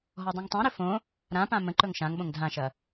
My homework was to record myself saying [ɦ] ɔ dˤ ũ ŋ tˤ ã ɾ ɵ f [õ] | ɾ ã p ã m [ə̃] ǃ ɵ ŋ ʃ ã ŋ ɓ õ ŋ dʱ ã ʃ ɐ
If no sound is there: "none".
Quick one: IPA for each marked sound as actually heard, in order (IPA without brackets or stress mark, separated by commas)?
ɦ, õ, ə̃